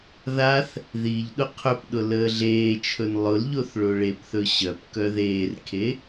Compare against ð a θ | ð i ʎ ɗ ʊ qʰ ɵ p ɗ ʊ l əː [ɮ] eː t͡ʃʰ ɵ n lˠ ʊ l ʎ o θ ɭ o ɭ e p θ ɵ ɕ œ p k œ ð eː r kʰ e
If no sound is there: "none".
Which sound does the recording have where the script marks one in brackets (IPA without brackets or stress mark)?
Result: ɮ